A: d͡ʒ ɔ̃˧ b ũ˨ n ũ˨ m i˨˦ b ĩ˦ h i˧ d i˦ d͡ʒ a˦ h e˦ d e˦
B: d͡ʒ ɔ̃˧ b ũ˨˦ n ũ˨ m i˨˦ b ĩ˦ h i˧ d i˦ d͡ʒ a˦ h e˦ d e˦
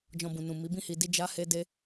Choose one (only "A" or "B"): A